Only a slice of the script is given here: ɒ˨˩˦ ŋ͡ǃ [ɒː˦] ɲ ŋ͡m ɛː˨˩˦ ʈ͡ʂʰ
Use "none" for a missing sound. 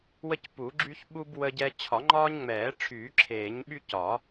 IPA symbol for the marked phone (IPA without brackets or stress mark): ɒː˦